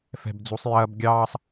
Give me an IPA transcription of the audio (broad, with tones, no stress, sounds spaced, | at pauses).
f ɛ̤˧ b d͡z u˨˦ sˤ j ɐː˦ b ɡʲ ɑː˧ sˤ